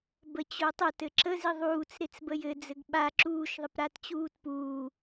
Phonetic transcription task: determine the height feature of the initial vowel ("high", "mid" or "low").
mid